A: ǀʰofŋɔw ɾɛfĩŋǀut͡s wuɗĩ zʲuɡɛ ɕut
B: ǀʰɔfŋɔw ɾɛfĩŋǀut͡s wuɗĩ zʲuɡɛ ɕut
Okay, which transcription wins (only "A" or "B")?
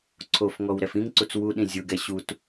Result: A